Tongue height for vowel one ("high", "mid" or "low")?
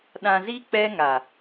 low